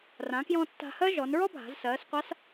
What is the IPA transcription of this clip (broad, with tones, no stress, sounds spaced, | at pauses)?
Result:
r ã˩˧ k j ɔ̃˧ tː a̤˧ h ɜ˥ ʒ ɔ˩˧ n ɹ ɔ˥ bʱ a̤˩˧ z s ɜː˩˧ s qʷ a˧˥ s